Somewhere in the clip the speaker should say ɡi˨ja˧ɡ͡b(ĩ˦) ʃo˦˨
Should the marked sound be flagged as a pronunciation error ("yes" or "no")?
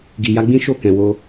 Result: no